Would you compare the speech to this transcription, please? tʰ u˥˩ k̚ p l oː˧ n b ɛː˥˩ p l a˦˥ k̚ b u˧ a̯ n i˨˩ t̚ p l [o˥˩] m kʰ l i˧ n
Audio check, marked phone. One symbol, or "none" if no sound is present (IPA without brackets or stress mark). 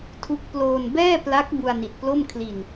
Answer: o˥˩